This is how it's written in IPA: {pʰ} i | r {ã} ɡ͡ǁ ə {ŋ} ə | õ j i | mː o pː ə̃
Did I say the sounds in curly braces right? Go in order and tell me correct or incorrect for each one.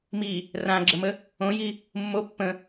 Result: incorrect, correct, incorrect

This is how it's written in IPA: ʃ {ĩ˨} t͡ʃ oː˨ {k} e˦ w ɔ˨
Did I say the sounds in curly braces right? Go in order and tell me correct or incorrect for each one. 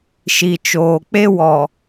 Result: incorrect, incorrect

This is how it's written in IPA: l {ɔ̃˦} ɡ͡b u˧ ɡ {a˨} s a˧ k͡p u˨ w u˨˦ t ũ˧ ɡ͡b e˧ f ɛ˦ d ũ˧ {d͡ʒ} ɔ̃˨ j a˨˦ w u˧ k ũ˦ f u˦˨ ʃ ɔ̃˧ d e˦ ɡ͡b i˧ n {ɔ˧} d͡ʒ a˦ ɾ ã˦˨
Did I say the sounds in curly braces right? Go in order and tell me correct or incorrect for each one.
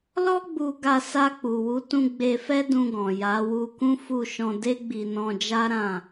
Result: incorrect, incorrect, incorrect, incorrect

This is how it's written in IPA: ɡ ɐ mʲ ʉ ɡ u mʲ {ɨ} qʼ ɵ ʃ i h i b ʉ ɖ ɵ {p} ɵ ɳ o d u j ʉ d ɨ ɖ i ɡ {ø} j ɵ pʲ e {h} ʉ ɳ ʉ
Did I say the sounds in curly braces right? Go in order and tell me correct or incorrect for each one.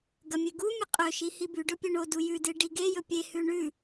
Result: correct, incorrect, incorrect, correct

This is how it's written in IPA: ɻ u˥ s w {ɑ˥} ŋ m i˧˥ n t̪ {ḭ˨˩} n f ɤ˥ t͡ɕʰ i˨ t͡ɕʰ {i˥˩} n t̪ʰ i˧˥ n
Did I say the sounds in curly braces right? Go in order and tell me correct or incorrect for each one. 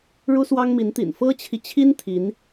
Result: correct, correct, incorrect

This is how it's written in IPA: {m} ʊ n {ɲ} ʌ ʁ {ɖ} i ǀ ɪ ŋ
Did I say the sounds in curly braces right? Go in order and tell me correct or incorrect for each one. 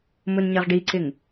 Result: correct, correct, correct

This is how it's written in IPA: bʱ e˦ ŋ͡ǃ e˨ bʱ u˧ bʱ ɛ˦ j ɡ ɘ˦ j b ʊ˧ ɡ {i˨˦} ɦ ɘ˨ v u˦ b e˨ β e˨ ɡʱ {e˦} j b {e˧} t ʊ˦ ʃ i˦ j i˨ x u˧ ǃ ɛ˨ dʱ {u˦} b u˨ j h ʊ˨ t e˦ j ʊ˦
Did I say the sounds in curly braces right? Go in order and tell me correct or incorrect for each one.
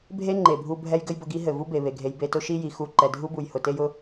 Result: incorrect, incorrect, correct, correct

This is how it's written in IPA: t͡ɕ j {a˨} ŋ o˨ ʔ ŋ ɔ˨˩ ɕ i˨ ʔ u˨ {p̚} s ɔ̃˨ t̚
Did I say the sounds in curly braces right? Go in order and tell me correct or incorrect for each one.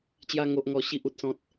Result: incorrect, incorrect

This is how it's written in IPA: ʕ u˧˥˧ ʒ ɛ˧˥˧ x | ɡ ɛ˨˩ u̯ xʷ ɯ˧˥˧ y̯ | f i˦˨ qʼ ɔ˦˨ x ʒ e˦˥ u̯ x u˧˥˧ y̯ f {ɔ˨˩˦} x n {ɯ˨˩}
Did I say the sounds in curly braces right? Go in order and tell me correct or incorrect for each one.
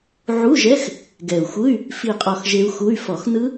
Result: correct, incorrect

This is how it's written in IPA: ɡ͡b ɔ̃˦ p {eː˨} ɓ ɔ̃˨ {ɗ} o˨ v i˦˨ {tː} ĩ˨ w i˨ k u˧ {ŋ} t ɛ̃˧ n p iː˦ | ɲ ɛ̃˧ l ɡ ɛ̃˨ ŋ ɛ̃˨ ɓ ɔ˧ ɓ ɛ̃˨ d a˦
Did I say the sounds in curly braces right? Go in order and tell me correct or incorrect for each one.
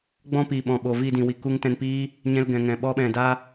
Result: incorrect, incorrect, incorrect, correct

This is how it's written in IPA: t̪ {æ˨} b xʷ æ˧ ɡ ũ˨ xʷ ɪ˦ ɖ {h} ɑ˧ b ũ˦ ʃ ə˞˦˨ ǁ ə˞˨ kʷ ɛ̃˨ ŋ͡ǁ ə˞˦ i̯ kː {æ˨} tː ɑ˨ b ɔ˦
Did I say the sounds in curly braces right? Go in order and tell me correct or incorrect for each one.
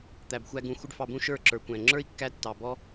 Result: correct, incorrect, incorrect

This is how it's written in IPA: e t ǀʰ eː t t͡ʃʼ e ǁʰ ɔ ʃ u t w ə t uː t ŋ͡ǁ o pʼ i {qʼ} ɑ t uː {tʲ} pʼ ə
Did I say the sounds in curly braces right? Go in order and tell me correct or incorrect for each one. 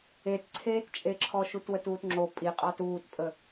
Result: correct, incorrect

